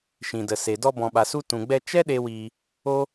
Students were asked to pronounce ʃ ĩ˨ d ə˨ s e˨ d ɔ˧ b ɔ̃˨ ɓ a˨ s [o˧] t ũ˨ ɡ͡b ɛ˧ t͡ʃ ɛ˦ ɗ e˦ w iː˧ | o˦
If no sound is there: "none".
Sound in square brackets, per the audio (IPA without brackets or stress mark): u˧